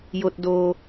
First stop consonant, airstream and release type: plain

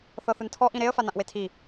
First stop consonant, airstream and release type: aspirated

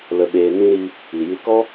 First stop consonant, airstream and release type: implosive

